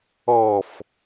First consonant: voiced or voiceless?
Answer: voiceless